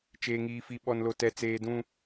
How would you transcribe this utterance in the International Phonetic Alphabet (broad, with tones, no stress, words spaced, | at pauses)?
t͡ʃeː˦ŋiː˦fi˦ ɓɔ˦nlo˦ tɛ˦t͡seː˦dũ˦